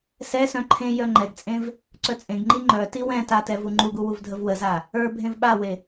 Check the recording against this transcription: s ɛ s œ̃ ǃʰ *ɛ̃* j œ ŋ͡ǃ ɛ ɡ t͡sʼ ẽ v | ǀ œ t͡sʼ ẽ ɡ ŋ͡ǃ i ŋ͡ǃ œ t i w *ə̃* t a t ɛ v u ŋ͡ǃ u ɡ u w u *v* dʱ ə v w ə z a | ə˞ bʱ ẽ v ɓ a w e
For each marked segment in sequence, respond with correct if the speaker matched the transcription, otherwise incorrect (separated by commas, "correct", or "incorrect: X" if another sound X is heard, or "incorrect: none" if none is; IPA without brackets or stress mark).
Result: incorrect: ẽ, incorrect: ɛ̃, correct